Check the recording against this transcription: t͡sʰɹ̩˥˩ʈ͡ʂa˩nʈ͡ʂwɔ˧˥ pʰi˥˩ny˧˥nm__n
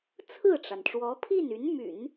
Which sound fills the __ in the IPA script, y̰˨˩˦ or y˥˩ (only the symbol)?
y̰˨˩˦